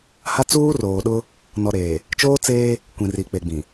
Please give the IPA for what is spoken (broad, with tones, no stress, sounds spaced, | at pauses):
h a˦ t͡s uː˦ r oː˨ ɗ ʊ˦ | n ɔ˨ ɾ eː˨ | t͡ʃ oː˦ t͡s eː˦ | kʷ ĩ˨ r i˨ k͡p e˨ ɡ͡b ĩ˨